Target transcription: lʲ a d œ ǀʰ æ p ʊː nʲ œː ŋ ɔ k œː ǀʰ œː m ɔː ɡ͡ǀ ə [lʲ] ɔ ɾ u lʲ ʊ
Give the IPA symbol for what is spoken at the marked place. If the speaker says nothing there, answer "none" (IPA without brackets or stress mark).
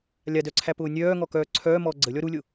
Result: lʲ